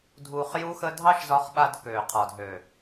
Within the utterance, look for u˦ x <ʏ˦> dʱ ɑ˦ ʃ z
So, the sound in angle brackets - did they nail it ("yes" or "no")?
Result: no